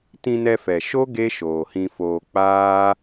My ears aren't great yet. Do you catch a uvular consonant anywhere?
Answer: no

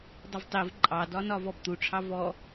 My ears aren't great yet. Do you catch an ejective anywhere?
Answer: yes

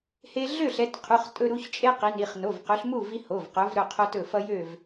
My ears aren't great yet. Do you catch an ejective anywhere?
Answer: yes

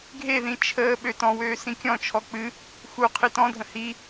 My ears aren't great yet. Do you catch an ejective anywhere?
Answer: no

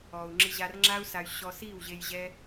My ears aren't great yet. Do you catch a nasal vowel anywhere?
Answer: no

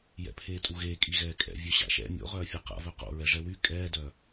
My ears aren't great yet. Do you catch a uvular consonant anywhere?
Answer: yes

